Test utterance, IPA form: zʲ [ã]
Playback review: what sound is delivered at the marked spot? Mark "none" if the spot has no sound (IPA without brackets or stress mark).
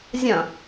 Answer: ɐ̃